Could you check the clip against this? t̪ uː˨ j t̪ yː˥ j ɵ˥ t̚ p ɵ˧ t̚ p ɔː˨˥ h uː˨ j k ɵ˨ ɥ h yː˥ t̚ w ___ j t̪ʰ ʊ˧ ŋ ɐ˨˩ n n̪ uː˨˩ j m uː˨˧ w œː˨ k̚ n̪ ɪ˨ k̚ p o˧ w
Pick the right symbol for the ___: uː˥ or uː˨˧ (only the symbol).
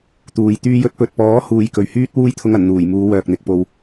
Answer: uː˥